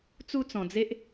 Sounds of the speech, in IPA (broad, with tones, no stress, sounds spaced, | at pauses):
t͡s u˦ t͡s ɔ̃˧ d͡z e˦ ʔ